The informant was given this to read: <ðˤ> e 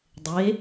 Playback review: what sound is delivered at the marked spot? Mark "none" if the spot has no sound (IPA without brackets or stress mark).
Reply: dˤ